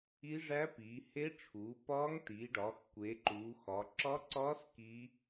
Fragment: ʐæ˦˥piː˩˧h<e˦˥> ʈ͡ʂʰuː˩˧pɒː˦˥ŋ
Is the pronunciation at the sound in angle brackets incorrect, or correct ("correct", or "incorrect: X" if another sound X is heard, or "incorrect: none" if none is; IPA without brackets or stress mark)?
correct